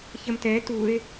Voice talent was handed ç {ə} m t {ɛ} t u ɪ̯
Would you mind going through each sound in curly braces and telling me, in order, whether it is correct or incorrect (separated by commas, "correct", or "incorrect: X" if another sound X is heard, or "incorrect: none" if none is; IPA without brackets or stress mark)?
correct, correct